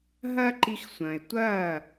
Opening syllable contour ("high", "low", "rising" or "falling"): high